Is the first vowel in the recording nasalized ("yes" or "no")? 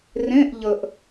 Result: yes